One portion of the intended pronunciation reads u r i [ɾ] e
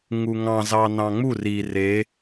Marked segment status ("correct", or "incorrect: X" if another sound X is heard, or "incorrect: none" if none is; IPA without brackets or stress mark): incorrect: r